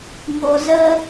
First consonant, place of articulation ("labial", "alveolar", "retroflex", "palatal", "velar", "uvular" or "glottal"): velar